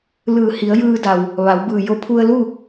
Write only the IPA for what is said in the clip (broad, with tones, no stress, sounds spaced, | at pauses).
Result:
l ɯː˧˩ h i˩˧ ə̯ j ɯː˧ d a˩ w | ʋ a˩˧ w b ɯː˧˩ j o˧ pʰ u˧ ə̯ l u˥˨